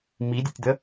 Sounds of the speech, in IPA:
m i dʲ e tʲ d̪ ə

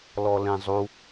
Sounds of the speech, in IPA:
l ɔ l ẽ zˤ u

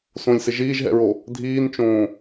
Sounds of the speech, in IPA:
s õ lʲ s ɪ ʒ iː ʒ ɦ ɛ̰ ɹ o | dʱ iː n t͡ʃ õː

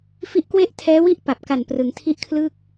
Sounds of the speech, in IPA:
f i˦˥ ʔ k w e˥˩ ʔ tʰ ɛː˦˥ w i˥˩ ʔ p a˨˩ p̚ k a˨˩ n p r ɯ˩˦ ŋ tʰ i˦˥ ʔ kʰ l ɯː˥˩ k̚

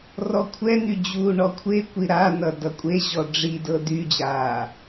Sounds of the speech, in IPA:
r ɔ kʷʰ ɛ n̪ y d͡ʑ uː ɳ ɔ kʷʰ e kʷ i ɾ a n ʌ d ʌ kʷʼ e ʑ ɔ ɖ͡ʐ i d ɤ d y d͡ʑ aː

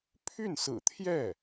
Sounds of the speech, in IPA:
pʰ y˥˩ n s ɹ̩˨˩ t̪ʰ j ɛ˥˩

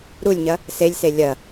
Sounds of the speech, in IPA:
ɾ u lʲ ɲ ɐ | s e lʲ s e lʲ ɐ

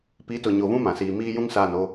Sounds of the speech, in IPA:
p i˨˦ t ʊ˨ ɲ o˨ v ũ˦ m ã˨ s iː˨ m iː˦ j ũ˦ ŋ s aː˦˨ n o˦

